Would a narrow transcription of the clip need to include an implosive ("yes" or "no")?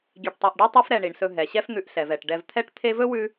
no